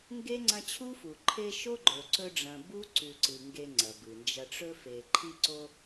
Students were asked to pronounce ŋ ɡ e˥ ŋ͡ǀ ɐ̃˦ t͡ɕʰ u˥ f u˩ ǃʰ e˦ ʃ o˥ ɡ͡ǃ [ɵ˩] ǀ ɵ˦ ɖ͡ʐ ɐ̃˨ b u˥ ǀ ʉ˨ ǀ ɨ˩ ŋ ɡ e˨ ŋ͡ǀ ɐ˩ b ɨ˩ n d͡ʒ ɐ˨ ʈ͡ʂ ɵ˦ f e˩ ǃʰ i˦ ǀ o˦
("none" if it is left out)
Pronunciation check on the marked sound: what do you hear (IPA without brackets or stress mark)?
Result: ɵ˩